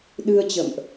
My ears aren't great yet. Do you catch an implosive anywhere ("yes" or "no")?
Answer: yes